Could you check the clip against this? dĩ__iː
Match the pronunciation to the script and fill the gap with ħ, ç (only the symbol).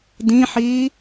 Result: ħ